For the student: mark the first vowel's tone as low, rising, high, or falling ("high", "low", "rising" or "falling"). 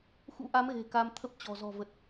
rising